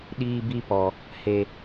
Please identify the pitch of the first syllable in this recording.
high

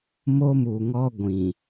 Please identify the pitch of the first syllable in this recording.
high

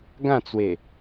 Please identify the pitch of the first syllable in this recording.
falling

